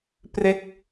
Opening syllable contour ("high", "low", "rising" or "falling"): falling